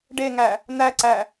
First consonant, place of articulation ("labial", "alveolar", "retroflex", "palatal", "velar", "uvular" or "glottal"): retroflex